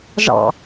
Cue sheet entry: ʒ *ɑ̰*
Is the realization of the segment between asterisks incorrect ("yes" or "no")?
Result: no